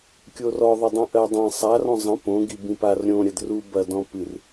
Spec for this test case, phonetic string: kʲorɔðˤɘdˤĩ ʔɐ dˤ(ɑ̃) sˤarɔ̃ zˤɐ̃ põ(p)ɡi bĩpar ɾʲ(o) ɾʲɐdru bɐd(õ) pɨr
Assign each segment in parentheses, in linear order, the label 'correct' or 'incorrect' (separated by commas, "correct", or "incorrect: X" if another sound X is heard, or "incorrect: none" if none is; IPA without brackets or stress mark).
incorrect: ã, incorrect: none, incorrect: õ, incorrect: ɔ̃